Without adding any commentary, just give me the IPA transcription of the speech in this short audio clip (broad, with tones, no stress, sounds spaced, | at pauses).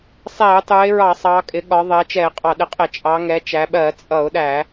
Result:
sˤ ɛ˧˩˧ ʊ̯ tˤ u˩˧ ɪ̯ ɹ ɑ˧˩˧ sˤ ɑ˩˧ kʼ ɪ˩˧ ɠ ɒ˩˧ ðˤ ɜ˩˧ t͡ʃ ɛ˧˩˧ ɪ̯ qʼ ɑ˧˩˧ ɗ ɪ˩˧ qʼ ɪ˧˩˧ t͡ʃʼ ɑ˩˧ ŋ ɛ˩˧ t͡ʃ æ˩˧ ɓ ɜ˧˩˧ t͡sʼ ʌ˧˩˧ ʊ̯ ɗ æ˧˩˧